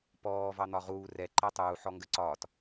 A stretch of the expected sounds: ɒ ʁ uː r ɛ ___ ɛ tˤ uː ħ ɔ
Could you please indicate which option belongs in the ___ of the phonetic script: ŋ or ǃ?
ǃ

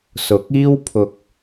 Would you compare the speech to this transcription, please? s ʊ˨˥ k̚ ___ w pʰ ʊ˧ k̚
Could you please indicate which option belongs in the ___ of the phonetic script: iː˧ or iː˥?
iː˥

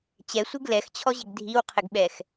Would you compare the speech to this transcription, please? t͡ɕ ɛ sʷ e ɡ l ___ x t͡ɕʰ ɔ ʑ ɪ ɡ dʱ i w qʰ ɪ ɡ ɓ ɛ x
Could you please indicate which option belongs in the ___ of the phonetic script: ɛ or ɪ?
ɛ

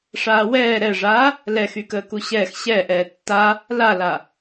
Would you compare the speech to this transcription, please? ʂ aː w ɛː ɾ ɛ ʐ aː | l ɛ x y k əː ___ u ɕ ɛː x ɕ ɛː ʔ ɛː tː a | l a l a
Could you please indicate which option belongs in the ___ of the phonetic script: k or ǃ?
k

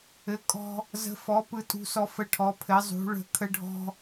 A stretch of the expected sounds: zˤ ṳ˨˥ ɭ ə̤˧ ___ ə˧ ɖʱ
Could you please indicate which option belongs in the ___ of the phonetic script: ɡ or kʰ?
kʰ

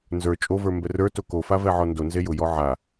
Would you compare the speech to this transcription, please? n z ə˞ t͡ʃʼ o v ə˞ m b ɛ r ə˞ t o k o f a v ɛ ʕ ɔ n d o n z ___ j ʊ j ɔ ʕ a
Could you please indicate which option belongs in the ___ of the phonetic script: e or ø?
e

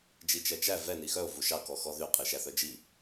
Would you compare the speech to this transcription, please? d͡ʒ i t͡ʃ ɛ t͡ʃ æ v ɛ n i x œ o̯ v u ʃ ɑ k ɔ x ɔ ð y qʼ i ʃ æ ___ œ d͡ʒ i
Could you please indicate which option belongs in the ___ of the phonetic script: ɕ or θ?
θ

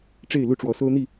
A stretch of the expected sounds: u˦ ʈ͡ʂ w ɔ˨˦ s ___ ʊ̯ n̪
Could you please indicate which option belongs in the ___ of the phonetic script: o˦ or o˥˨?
o˦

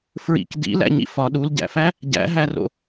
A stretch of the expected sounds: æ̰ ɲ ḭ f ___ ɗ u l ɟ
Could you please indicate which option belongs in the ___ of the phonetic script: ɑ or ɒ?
ɒ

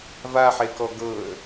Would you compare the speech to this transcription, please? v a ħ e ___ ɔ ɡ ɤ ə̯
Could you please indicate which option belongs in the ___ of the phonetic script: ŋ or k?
k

